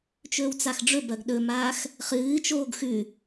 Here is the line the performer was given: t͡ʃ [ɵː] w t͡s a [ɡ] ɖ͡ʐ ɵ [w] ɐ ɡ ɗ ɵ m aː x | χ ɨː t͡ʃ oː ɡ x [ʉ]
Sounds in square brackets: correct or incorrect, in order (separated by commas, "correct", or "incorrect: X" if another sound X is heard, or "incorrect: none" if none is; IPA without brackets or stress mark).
correct, incorrect: x, incorrect: b, correct